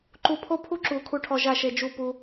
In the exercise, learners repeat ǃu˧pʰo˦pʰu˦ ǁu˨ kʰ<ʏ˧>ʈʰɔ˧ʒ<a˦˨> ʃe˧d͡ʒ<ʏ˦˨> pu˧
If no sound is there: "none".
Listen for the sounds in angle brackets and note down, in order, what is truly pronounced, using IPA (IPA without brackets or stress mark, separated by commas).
u˧, a˦˨, u˦˨